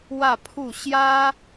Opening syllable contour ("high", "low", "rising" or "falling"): falling